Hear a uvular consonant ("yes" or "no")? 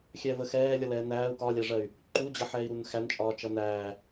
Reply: no